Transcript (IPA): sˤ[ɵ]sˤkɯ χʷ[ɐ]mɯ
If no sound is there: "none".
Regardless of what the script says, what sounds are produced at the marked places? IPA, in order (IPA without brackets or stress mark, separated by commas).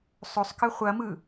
ɵ, ɐ